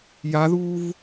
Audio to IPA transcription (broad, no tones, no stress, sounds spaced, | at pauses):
j a ð uː v